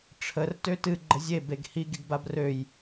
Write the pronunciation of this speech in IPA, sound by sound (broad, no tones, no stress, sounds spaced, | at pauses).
ʈ͡ʂʰ ə r t ø t ɨ ɡ͡ǃ ə zʲ e b e ɡ h i ɡ i ɡ b a b r ø j